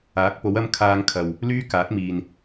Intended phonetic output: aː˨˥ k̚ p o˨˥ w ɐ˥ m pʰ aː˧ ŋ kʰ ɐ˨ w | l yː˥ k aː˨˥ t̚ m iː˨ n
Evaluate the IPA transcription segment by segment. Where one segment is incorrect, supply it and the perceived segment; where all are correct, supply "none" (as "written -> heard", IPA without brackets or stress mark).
pʰ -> kʰ